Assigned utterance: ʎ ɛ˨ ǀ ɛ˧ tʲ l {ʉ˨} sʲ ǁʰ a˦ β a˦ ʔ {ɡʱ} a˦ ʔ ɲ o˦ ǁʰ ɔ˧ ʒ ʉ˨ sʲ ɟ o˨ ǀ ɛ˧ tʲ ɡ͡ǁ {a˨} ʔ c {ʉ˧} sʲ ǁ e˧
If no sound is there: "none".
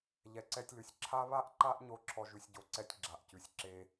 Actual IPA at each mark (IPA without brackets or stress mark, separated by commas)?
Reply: ʉ˨, ǃ, a˨, ʉ˨